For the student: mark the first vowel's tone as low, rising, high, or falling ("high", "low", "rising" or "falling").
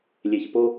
low